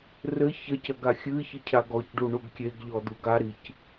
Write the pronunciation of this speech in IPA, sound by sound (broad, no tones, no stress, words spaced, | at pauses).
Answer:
rɘ çɐc ɐɡaxʲɨçɘ cʰaɡɔcɖu ɳuɡkʲeɡʎɔ d̪uɡaɾic